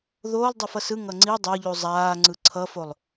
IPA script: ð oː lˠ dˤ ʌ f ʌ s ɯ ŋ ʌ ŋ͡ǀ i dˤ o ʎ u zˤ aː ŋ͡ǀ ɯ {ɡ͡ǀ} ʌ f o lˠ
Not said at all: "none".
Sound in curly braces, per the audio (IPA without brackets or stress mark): ǀʰ